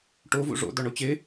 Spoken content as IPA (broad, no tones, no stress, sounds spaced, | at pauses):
ʈ o v ṵ ʐ o̰ d̪ ɔ ɳ o t͡ɕ e